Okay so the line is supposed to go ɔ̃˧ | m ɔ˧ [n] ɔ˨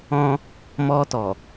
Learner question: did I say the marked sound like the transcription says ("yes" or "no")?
no